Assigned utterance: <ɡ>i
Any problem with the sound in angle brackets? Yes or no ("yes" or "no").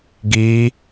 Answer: no